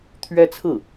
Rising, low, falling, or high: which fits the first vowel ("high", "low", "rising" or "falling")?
high